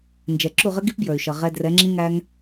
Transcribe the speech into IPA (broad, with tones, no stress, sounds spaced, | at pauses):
n d͡ʒ ɛ˨ ǁ u˦˨ ʁ ə˦ ɡ i˦ p b j ə˞˨ y̯ ʃ ʌ˨ ʁ ɛ˧ d r ɛ˨˦ ŋ͡ǁ ĩ˦ ŋ æ˦ ŋ